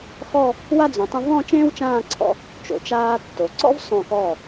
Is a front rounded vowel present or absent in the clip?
absent